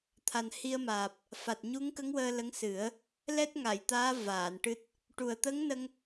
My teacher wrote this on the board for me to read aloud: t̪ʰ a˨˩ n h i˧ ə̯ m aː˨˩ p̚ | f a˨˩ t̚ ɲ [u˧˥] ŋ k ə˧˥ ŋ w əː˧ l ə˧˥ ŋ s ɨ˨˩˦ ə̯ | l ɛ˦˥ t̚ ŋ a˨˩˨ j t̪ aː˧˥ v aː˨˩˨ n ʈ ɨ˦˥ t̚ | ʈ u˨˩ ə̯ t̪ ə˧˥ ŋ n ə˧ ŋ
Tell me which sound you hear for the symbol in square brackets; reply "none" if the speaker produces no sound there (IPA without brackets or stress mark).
u˧˥